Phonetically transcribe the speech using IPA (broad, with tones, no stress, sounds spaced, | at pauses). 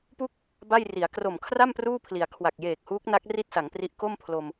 p u˥˩ k̚ | b a˥˩ j r i˩˦ a̯ k r o˨˩ m kʰ r a˥˩ m p r uː˥˩ pʰ l i˩˦ a̯ kʰ w a˨˩ k̚ j eː˨˩ k̚ h uː˦˥ k̚ n a˦˥ k̚ r i˥˩ t̚ s a˩˦ ŋ p r i˦˥ ʔ k o˥˩ m pʰ l o˧ m